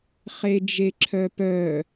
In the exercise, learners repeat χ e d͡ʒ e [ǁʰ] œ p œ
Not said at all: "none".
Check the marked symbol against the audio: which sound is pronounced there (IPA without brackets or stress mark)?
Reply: ǁʰ